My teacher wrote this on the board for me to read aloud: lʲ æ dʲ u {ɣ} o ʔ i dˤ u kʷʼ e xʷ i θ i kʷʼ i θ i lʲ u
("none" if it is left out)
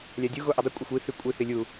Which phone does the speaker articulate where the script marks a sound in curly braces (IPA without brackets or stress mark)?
ɣ